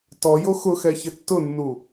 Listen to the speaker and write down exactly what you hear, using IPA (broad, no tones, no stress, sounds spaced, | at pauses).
t ɔ j o x ʊ x ɛ ç ɪ tː ʊ nː u